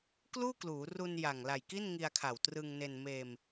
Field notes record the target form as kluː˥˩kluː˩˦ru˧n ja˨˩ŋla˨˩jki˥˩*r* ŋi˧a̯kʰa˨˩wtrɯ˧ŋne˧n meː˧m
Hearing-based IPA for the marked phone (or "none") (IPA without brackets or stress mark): n